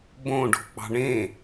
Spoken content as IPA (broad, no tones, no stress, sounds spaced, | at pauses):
b õ ɖ o̤ k͡p ɑ̤ ɳ ẽ